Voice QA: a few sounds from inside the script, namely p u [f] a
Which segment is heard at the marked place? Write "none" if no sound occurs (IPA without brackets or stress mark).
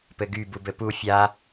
fʲ